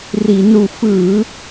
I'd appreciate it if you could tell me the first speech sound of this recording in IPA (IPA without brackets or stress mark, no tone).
r